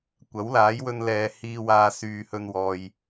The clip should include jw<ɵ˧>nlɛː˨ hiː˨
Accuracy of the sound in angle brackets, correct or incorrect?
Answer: correct